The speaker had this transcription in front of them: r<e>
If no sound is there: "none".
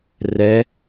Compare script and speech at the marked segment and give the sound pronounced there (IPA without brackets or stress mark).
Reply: ɛ